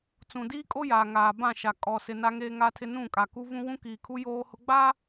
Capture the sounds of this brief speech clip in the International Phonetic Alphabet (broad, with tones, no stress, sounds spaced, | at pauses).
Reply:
t͡s ũ˨ d iː˦ kʼ o˦ j aː˨ ŋ aː˨ b ã˦˨ ʃ a˨ kʼ ɔ˨ s ɪ˨ n a˦ ŋ eː˦ ŋ a˦ tʰ ɪ˦ n ũ˦˨ kʼ a˨ k u˦ v ũ˦ w ũ˦ k iː˨ kʰ u˦ j oː˦ h ʊ˦ ɡ͡b aː˦